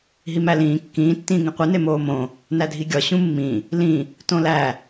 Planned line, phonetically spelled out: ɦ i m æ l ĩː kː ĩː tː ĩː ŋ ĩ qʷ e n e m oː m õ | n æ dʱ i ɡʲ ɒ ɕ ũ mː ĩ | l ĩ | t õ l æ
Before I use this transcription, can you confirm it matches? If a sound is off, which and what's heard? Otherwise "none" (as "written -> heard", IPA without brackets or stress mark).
none